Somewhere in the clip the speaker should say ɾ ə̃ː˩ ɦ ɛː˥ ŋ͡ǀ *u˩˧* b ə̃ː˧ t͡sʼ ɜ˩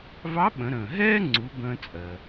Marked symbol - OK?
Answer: yes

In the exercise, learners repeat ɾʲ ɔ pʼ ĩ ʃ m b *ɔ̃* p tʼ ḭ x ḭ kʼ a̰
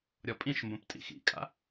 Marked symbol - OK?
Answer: no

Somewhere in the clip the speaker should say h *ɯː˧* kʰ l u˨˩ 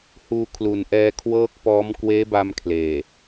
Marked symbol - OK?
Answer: no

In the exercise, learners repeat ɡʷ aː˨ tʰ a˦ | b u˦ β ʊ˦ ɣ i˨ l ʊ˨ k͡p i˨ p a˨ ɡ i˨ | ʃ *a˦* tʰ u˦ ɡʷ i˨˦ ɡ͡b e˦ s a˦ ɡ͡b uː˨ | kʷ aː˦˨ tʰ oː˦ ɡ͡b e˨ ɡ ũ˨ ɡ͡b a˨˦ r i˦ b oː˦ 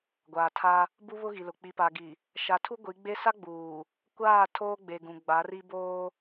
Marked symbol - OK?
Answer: no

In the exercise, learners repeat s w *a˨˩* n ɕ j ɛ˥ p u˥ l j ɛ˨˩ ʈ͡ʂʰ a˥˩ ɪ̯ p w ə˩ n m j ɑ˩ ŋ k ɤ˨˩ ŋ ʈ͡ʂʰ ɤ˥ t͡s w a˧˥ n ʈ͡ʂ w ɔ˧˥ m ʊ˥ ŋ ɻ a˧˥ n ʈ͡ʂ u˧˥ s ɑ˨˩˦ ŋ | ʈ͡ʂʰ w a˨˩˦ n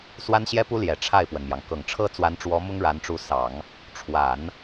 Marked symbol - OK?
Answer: no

